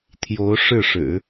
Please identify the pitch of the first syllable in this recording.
rising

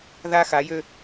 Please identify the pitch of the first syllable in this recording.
high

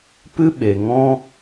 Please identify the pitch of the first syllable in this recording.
high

